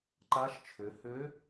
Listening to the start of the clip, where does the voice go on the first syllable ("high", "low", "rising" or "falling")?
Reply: rising